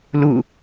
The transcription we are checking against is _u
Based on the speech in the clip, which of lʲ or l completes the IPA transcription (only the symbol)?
l